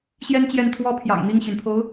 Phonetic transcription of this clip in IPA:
ɕ j ɛ˥ n t͡ɕ j ɛ˥˩ n t̪ʰ w ɔ˥ pʰ j ɑ̰˨˩ ŋ n̪ i˥˩ ŋ ɕ y˩ n pʰ o˧˥ ʊ̯

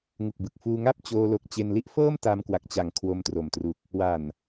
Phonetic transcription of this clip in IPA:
ŋ u˨˩ k̚ b ɯ˨˩ k̚ f uː˧ ŋ a˥˩ p̚ t͡ɕ oː˧ l o˨˩ k̚ t͡ɕ e˧ n l i˥˩ ʔ f ɤː˥˩ m t a˧ m k w a˨˩ k̚ t͡ɕ a˨˩ ŋ kʰ w o˧ m t r o˨˩ m t r u˨˩ k̚ | w a˨˩ n

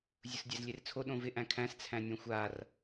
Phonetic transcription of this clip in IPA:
zʲ ʊ s dʲ æ z lʲ e r t͡sʰ o ɗ õ v ɪ ʔ æ̃ kʰ æ̃ s t͡sʰ æ̃ nʲ õ xʷ a r

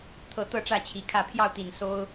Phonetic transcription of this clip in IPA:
t̪ʰ ɤ˨˦ t̪ ɤ˥˨ ʈ͡ʂ ä˥˨ t͡ɕʰ i˨˩ kʰ ä˥˨ pʰ j ɑ˥˨ ʊ̯ t̪ i˨˩ n s o˦ ʊ̯

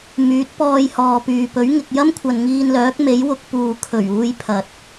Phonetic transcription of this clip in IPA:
m yː˨˥ t̚ p ɔː˧ j h ɔː˨ p yː˨ p ɵ˨˥ ɥ ŋ ɪ˨ k̚ j ɐ˥ m kʷʰ ɐ˨ n ŋ iː˧ n l œː˨˥ k̚ m e˨˥ j w ʊ˧ k̚ p uː˨ kʰ ɵ˨˩ ɥ uː˧ j pʰ ɐ˨ t̚

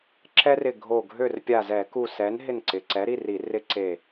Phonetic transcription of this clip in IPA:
ǁ ɛ˦ r ɪ˧˩ ɡʱ o˧˩ ɡʱ ø˥˨ r pʲ a˧˩ z ɛ˧˩˧ k u˧˩ s ɛ˨˥ n ɦ ɪ˥˨ n ǀ ɪ˩˧˩ ǀ ɛ˨˥ ɾ i˩˧˩ r i˧˩˧ r ɪ˦ ǀ e˧˩

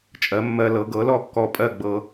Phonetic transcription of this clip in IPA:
t͡ʃʼ ɜ˩˥ mː ɜ˧ l ɤ˩˥ ɡ ɤ˩˥ l ɔ˥˨ kː ɔ˧ pʼ ɜ˥˨ ɡ͡b ɤ˧

